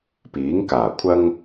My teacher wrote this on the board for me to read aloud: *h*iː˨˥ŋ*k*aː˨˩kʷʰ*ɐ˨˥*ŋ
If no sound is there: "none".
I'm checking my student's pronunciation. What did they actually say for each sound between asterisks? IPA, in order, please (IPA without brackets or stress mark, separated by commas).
p, k, ɐ˥